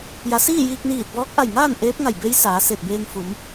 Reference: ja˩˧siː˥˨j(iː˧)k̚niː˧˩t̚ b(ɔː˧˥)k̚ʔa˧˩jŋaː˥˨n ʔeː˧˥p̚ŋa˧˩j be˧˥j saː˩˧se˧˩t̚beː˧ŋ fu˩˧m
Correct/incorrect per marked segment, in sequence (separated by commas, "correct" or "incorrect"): correct, correct